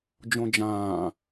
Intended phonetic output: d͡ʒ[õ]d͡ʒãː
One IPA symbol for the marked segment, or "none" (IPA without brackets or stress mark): õ